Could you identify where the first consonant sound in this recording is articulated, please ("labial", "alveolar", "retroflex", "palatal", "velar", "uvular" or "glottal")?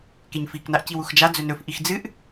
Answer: velar